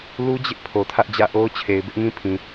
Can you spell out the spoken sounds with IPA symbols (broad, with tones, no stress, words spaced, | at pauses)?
lu˦d͡ʑɪ˦ʔ pʰo˨tʰä˦ʔd͡ʑä̰˦˨ʔo˦ʊ̯ t͡ɕʰe˨ɪ̯bɪ˦ʔŋĩ˦ pʰĩ˨